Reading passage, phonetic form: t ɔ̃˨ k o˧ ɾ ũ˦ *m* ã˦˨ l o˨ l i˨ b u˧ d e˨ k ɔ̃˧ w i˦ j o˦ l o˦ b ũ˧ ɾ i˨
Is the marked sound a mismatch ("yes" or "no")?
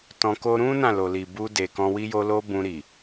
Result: yes